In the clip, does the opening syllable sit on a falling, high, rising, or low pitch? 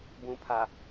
low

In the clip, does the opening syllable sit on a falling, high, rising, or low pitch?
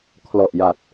low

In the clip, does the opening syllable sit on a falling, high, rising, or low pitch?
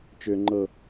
high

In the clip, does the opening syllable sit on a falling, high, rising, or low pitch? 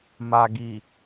low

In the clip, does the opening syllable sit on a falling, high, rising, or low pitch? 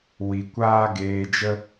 low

